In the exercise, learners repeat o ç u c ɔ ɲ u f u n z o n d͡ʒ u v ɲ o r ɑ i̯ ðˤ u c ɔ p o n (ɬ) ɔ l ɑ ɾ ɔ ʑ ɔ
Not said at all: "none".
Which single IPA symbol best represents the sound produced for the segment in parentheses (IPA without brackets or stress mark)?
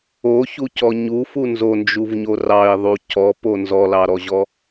z